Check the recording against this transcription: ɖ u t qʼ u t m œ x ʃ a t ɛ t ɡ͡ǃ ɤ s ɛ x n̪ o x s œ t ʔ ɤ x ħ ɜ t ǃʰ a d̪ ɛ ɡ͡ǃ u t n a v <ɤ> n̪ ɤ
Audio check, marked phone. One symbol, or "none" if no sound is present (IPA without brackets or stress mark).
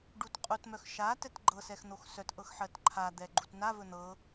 ɵ